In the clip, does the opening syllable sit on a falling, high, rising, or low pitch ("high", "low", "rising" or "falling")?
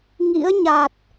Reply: rising